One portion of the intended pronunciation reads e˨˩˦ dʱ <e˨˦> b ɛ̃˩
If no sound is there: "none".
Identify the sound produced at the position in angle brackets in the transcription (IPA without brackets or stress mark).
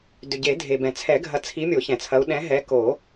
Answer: e˩